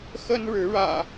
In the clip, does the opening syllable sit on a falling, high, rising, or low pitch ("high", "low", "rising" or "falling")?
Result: high